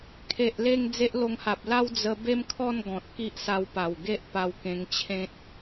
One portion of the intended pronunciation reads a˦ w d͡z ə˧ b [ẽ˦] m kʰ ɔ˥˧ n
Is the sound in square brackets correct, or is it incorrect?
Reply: incorrect